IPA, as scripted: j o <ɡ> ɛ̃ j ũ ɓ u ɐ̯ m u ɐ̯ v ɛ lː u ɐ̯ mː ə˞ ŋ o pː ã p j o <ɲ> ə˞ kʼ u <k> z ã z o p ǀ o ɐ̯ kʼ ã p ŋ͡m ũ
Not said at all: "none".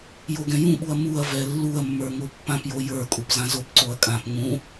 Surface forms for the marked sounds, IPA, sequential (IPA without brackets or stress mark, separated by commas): ɡ, j, p